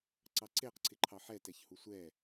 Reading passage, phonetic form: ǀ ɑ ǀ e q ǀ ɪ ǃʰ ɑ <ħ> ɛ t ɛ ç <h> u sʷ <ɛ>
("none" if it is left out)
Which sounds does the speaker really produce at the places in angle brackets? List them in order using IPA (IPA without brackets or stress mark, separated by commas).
ħ, h, ɛ